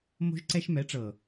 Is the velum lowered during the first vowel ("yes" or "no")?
no